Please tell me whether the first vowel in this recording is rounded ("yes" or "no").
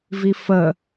no